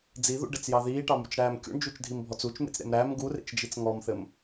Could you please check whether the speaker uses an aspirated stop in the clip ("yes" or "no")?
no